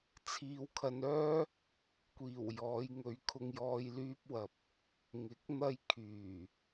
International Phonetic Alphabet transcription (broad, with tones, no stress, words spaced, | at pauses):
t͡sʰiː˧wkʰɐ˧nœː˥ | kʷiː˨˩w jɔː˨˧j ŋɵ˨˧ɥ kʰʊ˧ŋjɔː˧j lyː˧p̚wɐ˨p̚ | ŋɪ˨˥k̚n̪ɐ˧j kʰyː˨˩